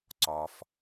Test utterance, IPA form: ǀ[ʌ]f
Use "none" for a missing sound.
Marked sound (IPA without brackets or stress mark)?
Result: ɒ